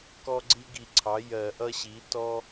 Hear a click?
yes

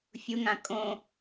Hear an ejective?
yes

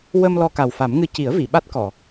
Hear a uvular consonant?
no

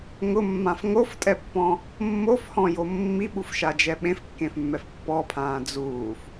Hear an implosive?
yes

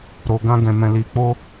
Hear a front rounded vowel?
no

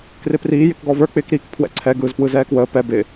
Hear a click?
yes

